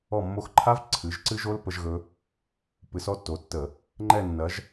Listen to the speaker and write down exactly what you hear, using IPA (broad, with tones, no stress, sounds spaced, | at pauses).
ɔ˦˨ mː o˦˨ x ǃʰ a˦˥ v ǀʰ ɨ˨˦ ʒ ǀ ɨ˦˥ ʒ o˦˥ l p ə˦˥ ʒ ɣ ɵ˦˥ | p ɨ˨˦ s ɔ˦˥ tː o˨˦ tː ə˧˩˧ | ŋ͡ǃ ɛ˦˨ nː ɐ˨˦ ʒ